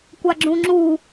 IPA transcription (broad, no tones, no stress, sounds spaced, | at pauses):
kʷ a ɡ͡ǁ ũ ŋ͡ǁ u